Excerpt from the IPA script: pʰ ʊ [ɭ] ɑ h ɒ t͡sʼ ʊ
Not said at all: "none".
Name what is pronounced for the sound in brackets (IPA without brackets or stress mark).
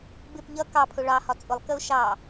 ɭ